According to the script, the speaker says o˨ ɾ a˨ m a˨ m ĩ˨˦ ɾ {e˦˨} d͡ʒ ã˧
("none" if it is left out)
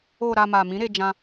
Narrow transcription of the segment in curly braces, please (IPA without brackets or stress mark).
e˧